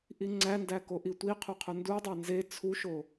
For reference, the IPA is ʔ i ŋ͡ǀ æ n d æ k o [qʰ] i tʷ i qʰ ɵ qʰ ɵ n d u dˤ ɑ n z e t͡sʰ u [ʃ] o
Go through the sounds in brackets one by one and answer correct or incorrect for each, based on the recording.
incorrect: ʔ, correct

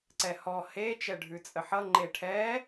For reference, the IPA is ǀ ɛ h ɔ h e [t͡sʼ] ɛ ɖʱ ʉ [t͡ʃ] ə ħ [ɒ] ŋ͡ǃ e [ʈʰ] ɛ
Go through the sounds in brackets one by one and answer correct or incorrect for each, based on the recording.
incorrect: t͡ʃ, incorrect: t͡sʼ, incorrect: ʌ, correct

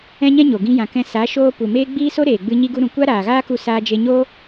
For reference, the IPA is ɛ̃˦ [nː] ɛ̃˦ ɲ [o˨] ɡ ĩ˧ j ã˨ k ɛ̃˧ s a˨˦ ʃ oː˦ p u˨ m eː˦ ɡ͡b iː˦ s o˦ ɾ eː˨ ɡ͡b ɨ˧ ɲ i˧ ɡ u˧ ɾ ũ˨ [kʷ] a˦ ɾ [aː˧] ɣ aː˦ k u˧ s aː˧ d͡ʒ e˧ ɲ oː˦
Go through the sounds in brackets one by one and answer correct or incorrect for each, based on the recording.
incorrect: ɲ, correct, correct, incorrect: aː˨

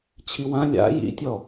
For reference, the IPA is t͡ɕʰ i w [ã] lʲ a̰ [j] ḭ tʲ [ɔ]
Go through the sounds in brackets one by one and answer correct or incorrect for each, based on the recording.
correct, correct, correct

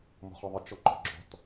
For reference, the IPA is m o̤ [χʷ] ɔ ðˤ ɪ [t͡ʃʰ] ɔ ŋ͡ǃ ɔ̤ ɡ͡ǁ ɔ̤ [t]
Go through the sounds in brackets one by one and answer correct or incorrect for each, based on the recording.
incorrect: χ, incorrect: t͡ʃ, correct

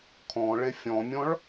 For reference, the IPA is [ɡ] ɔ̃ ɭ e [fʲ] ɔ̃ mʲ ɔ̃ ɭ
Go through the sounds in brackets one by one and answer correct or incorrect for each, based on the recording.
incorrect: kʰ, correct

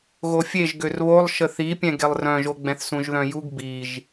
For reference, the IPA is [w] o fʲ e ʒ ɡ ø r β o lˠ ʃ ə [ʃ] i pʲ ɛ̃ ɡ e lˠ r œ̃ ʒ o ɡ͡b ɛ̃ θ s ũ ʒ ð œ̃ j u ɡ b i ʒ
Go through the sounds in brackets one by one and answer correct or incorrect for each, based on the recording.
incorrect: ɣ, incorrect: θ

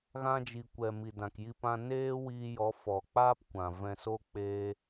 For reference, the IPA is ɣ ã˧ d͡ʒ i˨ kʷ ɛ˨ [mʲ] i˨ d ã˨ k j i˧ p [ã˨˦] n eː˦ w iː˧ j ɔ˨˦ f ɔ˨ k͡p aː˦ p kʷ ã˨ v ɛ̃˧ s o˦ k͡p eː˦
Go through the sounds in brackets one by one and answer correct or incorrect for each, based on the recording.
incorrect: m, incorrect: ã˧

